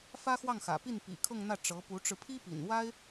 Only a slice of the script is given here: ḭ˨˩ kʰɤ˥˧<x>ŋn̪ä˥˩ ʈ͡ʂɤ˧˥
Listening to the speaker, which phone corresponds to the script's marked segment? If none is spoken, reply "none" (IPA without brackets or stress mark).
none